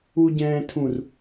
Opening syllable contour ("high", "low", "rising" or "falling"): low